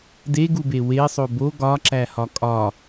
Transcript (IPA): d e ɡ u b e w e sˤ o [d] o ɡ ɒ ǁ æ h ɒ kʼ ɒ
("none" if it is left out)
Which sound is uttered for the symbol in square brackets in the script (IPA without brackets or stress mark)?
b